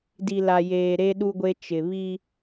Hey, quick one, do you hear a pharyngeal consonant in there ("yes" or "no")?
no